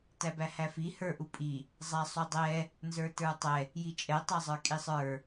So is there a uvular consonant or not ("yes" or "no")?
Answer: no